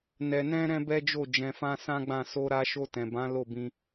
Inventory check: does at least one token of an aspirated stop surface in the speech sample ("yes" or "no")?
no